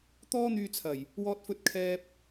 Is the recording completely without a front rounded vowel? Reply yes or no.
no